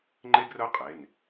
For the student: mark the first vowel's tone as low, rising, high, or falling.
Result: high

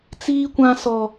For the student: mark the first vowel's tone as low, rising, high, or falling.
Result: high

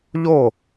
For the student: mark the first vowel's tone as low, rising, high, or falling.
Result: falling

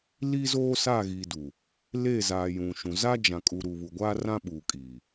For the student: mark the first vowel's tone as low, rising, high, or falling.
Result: high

